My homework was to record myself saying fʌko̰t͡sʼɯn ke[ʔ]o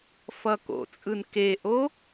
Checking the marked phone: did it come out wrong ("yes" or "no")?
no